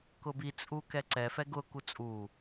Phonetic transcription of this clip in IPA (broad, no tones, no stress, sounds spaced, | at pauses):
k ʊ b i t͡sʼ u k ɛ ǀ ɛ f ɛ ɡ ʊ k u t͡sʼ u